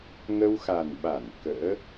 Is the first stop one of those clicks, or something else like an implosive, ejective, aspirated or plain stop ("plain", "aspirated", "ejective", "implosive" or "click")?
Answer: implosive